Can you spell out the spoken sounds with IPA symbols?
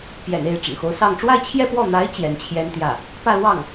p j ɛ̰˨˩ n e˥˩ ɪ̯ ʈ͡ʂ ə̰˨˩ n x o˧˥ ʊ̯ s ɑ˥˧ ŋ ʈ͡ʂ w a˥˧ ɪ̯ t͡ɕʰ j ɛ˥˧ p w ɔ˥˩ n̪ a˧˥ ɪ̯ t͡ɕ j ɛ˧˥ n t͡ɕʰ j ɛ˥ n t̪ j ä˥˩ | p ä˥˧ l w ɑ˥˩ ŋ

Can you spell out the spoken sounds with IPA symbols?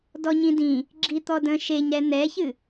d ɔ ɲ ĩ d ĩ | ɡ͡ǁ i t̪ ɔ d ə̃ ʃ e ɲ ɾ ɛ n̪ ɛ ç ɨ

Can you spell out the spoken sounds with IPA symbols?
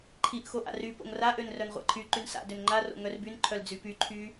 ǃʰ i ʔ x o ʔ a̰ r y p o̰ ŋ r a ʔ ø n r œ n ʁʷ a̰ ǃʰ y ǃ y n s a̰ d ø n ŋ͡ǃ a r o̰ ŋ œ r b y n ǃʰ œ l d͡z y p y ǃʰ y

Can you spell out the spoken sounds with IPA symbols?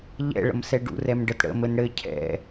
ʎ ɛ̰ ɭ ə̰ m s ɛ ɖ ṵ r ɛ m ɖ ə t ɽ ə̰ m ɘ n ɽ ɘ cʰ ɛ̰

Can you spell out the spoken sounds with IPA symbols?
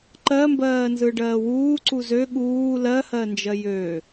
ǃ ɜ m b ɜː n z ɯ ɖ ɜː w uː ǀ u z ø ɠ uː l ɜ h ɜ n d͡ʒ ɜ j ø

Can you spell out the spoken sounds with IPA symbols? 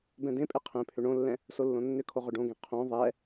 b ɛ̃ d ẽ pʼ e qʰ ẽ pʰ ʏ ɳ õ lː ɛ̃ | s o lː õ nː ʏ kʰ o ʁ ʏ ɖ õ ɡ ẽ qʰ õ ðˤ ɛ

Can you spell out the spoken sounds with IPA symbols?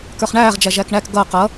k ə˞ χ ɳ æː ʁ d͡ʒ æ ʒ æ k ɳ æ k ɡ ʌ q ʌ

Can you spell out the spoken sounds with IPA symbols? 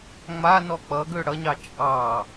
ŋ͡m a n ɔ k͡p ʌ ɡ ø ɽ ʌ ɲ ɑ t͡ʃʼ ɑ

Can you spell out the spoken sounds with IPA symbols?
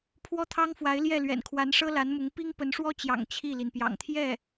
pʰ w ɔ˥ t̪ʰ ɑ˥ ŋ f w a˧˥ ɪ̯ l j ɛ˥˩ l ɥ ɛ̰˨˩ n kʰ w a˧˥ n ʂ ɤ˥ l a˧˥ n m ʊ˧˥ ŋ p i˥ ŋ p ə˧˥ n ʂ w ɔ˥ t͡ɕ j ɑ̰˨˩ ŋ t͡ɕʰ i˥˩ l i˩ n p j ɑ̰˨˩ ŋ t̪ʰ j ɛ˥˩

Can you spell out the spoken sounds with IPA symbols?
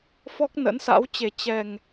f ɔ˦˥ k̚ n ə̰˧˥ n s a̰˧˥ w t͡ɕ e˨˩ t͡ɕ ɛ˨˩ ŋ

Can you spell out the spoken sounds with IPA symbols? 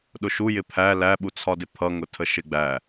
ɗ ʊ ʃ u j ɪ pʰ æ l æ ɓ u t͡sʰ ɒ d ɪ pʰ ʌ ŋ ʊ tʰ ə ʃ ɪ ɡ͡b æ

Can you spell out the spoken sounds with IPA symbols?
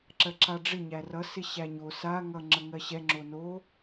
ǁ ɜ ǁ a ɖ͡ʐ ɪ ɲ æ r ʌ s ɪ ɕ æ ɲ o s a ŋ ʌ ŋ͡ǁ ə ŋ ɜ ɕ ɛ ŋ͡ǁ o n o

